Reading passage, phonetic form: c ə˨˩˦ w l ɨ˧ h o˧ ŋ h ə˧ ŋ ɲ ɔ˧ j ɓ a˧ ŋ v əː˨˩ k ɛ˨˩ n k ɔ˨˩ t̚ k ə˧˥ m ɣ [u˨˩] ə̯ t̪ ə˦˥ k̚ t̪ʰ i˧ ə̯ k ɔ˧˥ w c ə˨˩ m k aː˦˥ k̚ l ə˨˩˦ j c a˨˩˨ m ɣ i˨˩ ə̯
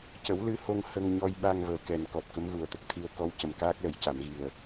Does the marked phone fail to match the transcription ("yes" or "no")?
no